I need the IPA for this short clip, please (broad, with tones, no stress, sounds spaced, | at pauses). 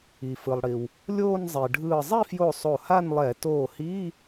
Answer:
i˩ f ɯ˩ lˠ ɽ i˩ w | lʲ oː˥˧ n zˤ e˩ ɖʱ ɯː˧˩ zˤ i˥˧ f j o˧˩ sˤ o˧˩ h a˥˧ n lˠ ɛ˧˩˧ t oː˧˩ h iː˧˥˧